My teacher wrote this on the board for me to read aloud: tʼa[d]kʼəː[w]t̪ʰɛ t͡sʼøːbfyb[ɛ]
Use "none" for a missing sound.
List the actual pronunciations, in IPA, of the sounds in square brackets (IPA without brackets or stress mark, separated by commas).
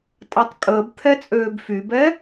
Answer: tˤ, b, ɛ